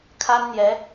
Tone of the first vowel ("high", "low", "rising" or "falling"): high